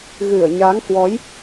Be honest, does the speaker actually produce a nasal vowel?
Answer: no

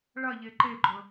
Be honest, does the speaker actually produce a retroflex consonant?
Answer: yes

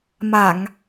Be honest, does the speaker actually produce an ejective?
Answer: no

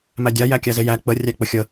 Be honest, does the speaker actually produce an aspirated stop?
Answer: no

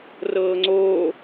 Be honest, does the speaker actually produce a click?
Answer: yes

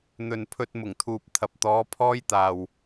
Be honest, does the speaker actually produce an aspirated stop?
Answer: yes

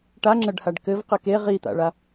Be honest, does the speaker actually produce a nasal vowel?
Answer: no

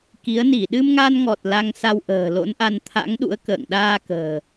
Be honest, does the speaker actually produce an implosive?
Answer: yes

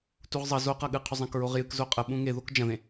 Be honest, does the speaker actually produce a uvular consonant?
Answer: yes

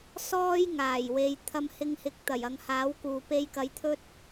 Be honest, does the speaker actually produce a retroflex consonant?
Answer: no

